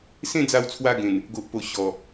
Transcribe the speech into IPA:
s ẽ˥˧ d͡z a˧ w t͡sʰ w a˧ ɡ ẽ˨˩ n | ɡ o˨ ʔ p o˨˩ ɕ ɔ˨˩

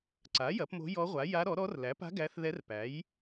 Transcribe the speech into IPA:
ǀ a˩˥ j ɐ˩˥ p m o̤˧˥ j ɔ˧˥ ʁʷ a˩˥ j a˧˥ ɾ ɔ˩˥ ɾ ɔ˧˥ r l æ˩˥ p a̤˧˥ ɡ æ˧˥ θ ð ɛ˧˥ r p æ˩˥ j

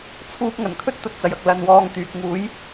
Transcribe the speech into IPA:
t͡sʰ uː˧ p̚ ŋ ɐ˨˩ n kʰ ɵ˥ t̚ t̪ ɐ˨ t̚ t͡s ɐ˨˩ j ɐ˨ k̚ l ɐ˨ n w ɔː˧ ŋ t̪ yː˨ k̚ ŋ uː˨˥ j

